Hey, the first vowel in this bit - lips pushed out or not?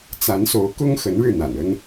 no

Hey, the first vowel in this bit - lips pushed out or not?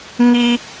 no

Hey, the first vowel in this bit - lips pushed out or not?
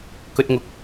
yes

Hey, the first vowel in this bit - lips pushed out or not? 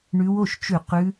yes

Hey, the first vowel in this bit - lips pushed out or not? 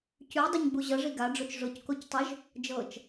yes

